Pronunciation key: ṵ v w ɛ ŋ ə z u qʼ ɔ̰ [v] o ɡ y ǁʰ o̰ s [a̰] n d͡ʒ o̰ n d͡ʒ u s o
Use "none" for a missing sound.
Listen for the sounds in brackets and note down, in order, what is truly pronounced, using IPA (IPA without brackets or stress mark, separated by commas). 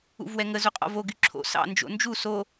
v, ɑ̰